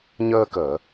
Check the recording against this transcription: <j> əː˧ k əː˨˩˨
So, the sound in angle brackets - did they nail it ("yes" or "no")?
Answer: no